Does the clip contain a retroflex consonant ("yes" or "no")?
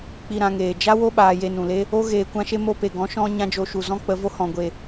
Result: no